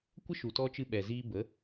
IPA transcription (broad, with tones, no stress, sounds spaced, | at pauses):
kʷ ə˦ ʃ u˨ t ɔ˧ t͡ʃ ɨ˧ ɓ ɛ˨ z iː˧ b ə˨˦